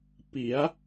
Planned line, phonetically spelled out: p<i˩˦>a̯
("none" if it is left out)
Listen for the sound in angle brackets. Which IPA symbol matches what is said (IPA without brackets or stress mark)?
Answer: i˩˦